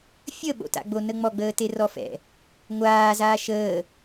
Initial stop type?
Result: implosive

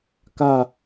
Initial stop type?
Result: plain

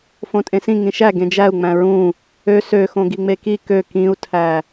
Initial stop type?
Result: ejective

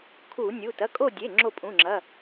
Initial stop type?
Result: aspirated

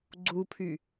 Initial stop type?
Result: click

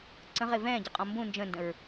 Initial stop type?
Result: click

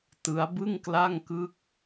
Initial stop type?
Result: plain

